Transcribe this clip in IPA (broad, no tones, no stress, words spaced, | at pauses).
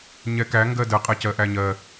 ɲɛkæ ŋɡɜdə qʼɛcɜʔæɲɜ